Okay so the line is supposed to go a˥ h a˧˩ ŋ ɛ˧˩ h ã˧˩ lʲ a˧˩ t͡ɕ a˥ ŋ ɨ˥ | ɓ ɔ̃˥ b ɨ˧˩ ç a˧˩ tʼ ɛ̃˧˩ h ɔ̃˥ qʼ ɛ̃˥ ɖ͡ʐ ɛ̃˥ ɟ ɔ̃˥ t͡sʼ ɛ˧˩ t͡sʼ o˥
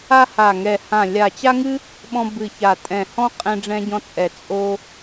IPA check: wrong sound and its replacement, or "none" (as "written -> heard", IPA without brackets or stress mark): none